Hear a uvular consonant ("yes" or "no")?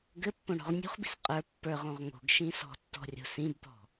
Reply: yes